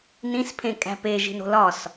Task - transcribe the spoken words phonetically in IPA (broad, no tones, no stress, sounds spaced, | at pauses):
n ĩ s pʰ ẽ kʼ æ̤ p e ʒ i̤ n o̤ l ɒ s